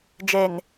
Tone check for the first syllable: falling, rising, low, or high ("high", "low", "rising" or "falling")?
low